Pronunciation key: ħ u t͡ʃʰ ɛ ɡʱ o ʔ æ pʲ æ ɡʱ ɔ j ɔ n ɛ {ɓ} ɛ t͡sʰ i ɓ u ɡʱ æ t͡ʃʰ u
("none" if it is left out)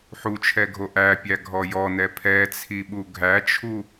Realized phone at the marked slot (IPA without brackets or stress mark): pʰ